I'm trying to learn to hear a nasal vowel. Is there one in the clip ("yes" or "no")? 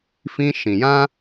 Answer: yes